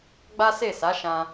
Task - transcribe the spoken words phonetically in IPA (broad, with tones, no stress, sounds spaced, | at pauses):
ɡ͡b a˦ s e˦˨ s a˨˦ ʃ ã˧